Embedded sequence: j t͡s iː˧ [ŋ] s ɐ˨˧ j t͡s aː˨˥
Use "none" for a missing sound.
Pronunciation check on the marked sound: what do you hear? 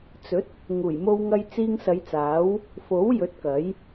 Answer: ŋ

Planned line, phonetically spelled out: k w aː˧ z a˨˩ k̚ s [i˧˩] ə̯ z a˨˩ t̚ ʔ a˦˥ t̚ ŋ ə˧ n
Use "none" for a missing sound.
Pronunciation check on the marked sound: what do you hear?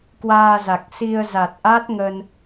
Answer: i˧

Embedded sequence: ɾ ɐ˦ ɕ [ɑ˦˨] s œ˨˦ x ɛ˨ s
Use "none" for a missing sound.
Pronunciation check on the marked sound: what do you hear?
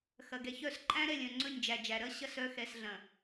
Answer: ɐ˦˨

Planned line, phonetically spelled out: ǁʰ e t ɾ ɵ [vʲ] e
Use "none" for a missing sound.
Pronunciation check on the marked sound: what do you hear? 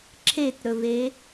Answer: v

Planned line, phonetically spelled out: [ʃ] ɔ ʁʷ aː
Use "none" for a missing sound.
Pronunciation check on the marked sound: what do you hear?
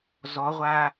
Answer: z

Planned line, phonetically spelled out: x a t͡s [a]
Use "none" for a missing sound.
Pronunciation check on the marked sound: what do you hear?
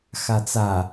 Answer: a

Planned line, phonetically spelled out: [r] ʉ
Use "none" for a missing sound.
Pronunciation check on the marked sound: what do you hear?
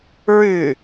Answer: ɹ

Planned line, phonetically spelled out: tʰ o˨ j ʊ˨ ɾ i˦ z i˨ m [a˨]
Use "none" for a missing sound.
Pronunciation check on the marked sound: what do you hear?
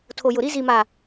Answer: a˨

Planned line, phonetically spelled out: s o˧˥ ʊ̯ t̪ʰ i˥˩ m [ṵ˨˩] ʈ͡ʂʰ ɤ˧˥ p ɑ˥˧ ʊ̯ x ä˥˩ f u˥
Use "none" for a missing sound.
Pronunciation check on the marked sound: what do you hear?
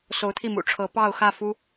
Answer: ṵ˨˩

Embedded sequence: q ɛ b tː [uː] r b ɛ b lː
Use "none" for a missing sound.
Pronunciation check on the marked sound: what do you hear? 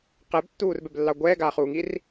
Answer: uː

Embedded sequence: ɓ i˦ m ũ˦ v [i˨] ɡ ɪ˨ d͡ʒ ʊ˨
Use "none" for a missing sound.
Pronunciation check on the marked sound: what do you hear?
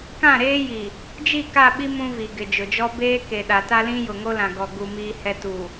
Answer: i˨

